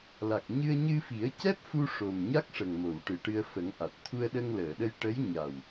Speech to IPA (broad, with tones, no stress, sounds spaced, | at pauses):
l a˨˩ k̚ ɲ ɨ˧ ə̯ ɲ ɨ˧ f i˨˩˦ ə̯ c ɛ˦˥ p̚ f u˧ ʂ o˨˩ m ɲ a˦˥ k̚ ʂ ə˨˩ ŋ m o˨˩˨ w ʈ ɨ˨˩ ʈ ɨ˧ ə̯ f ə˨˩˦ ŋ ʔ a˨˩ t̚ t̪ʰ u˧ ə̯ ɗ ə˧ ŋ l əː˨˩˨ ɗ ə˧ j ʈ ə˧˥ j ɲ a˨˩ w